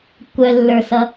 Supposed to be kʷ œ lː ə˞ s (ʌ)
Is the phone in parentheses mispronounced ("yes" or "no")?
no